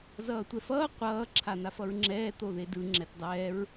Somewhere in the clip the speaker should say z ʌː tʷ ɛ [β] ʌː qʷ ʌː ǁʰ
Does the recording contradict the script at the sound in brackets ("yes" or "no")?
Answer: yes